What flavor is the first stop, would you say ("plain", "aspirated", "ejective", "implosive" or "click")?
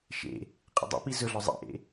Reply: ejective